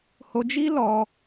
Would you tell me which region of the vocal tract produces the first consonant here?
throat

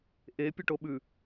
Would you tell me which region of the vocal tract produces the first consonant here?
throat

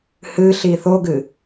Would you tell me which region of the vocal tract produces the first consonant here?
throat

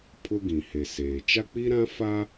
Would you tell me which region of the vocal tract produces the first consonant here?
lips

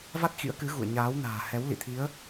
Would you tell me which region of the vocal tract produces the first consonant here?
lips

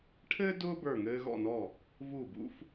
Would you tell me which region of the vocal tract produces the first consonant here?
retroflex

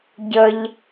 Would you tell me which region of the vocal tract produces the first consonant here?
palate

